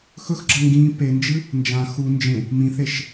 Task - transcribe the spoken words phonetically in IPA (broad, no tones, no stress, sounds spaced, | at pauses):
x ɵ x ɡ͡ǁ ɐ ŋ ɡ ĩ p e n d͡ʒ ɨ | n d͡ʒ ã x u n d͡ʒ ẽ | m ĩ θ e ʃ